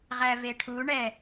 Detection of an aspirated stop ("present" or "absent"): present